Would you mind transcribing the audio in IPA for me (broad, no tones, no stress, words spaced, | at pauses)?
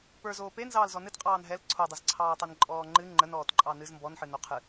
pə˞zoː penzɑːlzɔ nɨtqʼɑːn ɦɛl ǀʰodˤəzǀʰɑːtˤen ǃʼɔːŋ͡ǃɨ ŋ͡ǃənɔːtǃʼɑ nɨz mbɔnħɨno qʰɨ